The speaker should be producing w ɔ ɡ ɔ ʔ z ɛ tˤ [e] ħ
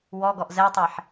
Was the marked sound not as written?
no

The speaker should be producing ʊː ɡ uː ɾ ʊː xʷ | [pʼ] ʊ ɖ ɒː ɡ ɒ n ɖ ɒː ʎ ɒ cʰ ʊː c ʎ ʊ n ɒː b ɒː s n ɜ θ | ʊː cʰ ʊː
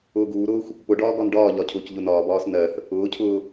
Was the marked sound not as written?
yes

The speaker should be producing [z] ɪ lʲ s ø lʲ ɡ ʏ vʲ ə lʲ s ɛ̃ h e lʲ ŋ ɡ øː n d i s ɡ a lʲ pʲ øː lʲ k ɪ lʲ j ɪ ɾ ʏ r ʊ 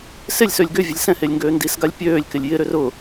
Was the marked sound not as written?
yes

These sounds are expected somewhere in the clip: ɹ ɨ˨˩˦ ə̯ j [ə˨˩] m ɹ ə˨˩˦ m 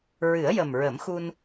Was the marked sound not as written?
no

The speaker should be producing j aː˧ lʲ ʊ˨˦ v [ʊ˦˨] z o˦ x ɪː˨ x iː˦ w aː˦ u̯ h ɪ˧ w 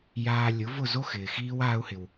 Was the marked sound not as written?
no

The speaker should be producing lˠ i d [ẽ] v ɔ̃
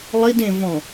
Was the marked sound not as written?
no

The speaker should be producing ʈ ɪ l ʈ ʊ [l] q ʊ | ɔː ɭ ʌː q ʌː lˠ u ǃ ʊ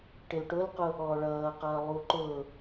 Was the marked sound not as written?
no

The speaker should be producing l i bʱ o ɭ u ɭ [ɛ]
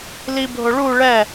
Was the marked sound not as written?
no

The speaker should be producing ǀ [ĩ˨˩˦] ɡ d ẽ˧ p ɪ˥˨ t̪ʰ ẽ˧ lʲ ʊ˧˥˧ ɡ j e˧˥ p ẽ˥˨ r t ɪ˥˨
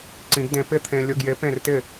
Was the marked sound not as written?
no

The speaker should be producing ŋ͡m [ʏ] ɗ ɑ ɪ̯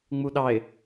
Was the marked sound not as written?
yes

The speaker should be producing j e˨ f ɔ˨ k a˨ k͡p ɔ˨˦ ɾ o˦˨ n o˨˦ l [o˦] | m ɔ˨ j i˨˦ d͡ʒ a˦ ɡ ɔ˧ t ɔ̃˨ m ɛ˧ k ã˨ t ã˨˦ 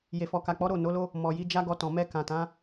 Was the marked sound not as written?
no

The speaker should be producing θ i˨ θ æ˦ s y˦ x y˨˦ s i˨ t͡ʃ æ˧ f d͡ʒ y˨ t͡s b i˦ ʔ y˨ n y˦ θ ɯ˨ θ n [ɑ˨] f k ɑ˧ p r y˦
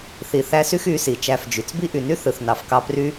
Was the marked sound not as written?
no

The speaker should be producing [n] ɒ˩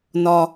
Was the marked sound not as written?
no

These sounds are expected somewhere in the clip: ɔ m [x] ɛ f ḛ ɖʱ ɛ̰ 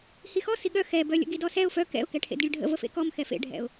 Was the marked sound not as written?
no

